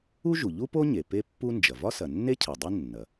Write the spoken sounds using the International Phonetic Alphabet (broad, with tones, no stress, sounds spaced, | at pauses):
u˥ ʒ u˩ ʎ u˥ p o˥ ɲ e˩ p e˥ pː u˥ n d͡ʒ ɐ˩ v ɒ˥ s ɐ˩ nː e˥ cʰ ɐ˩ dˤ u˥ nː ɐ˩